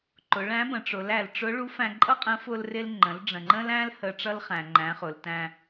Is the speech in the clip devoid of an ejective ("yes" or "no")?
no